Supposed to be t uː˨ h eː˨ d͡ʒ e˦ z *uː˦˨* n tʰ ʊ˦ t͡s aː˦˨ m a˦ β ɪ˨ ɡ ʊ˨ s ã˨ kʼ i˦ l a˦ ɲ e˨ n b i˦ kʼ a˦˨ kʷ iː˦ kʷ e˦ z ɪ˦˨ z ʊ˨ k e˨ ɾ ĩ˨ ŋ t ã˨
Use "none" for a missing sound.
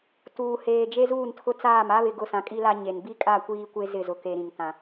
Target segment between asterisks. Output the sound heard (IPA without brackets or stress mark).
uː˦˨